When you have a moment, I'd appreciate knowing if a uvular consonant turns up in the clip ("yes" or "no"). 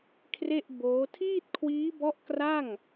no